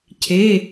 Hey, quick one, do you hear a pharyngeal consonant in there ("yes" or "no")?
no